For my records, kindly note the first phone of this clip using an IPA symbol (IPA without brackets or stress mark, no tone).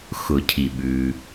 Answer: x